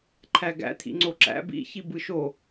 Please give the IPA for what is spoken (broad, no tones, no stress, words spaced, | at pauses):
ǃʰæɡæ̰ t̪ʰḭŋ͡ǀoǁæ̰ bḭçi bɯʃo